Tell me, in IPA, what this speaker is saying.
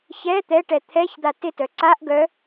ç ɛ t̪ ɛ ʈ ɛ t̪ʰ ɛ ç d̪ a t ɪ t œ ǀ a ʔ ɡ œ

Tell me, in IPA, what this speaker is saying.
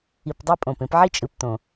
i˨ p dˤ e˦ pʼ õ˩ p ẽ˦ p ʕ i˥ t͡ʃʼ ɯ˨ p t õ˩

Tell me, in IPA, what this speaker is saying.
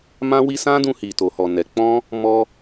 m ã˦ w i˦ s ã˦ d ũ˧ h i˨ t o˨ h ɔ˨ n ɛ˨˦ k͡p ɔ̃˦ | m ɔ˧

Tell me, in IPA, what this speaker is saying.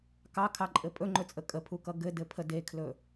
k ɑ kʰ ɑ ǃʼ ɘ pʼ ɵ ŋ͡ǃ ɵ t͡sʼ ə kʼ ə pʰ u k ʌ ɡ ɘ d ɘ pʰ ə d e kʰ l ɵ

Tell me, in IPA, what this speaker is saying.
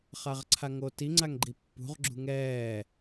χ a ʁ ǀʰ a ŋ oː t i ŋ͡ǀ a ŋ ɡ͡ǃ i pː ṳ ʁ ɡ͡ǁ ṳ ŋ ɛː

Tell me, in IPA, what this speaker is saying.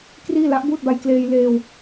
k r iː˥˩ l a˦˥ ʔ b uː˥˩ t̚ b a˧ j k l eː˧ j l eː˧ w

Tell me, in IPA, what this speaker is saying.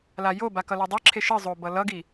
l a j o b a k ʌ l o dˤ i ǁʰ e ʃ ɯ zˤ o b ʌ l ʌ ɡ i

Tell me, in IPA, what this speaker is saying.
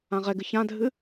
ã ʁ ɛ ɡ ɨ ç ã dʱ ɨ

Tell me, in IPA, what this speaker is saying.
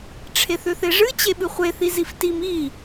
ʈ͡ʂʰ e θ ʏ θ e ʐ ɨ t͡ɕ e ɓ ɨ χʷ e θ i z i f t i m i

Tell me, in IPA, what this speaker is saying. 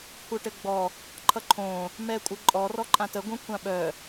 kʷʰ œ ʈ ɘ ɡ͡b ɔ | ǃʰ ʌ ǃʰ õ | m ɛ kʷʼ ɘ ǃʼ ɔ r ɔ ǃʼ ã t ə ɡʷ œ̃ kʷʰ ã ɓ œ

